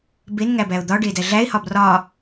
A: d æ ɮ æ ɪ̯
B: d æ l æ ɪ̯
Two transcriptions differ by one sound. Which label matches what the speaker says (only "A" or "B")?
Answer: A